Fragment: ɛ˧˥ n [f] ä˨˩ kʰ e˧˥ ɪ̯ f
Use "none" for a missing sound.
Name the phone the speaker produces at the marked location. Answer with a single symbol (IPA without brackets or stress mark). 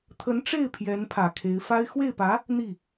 pʰ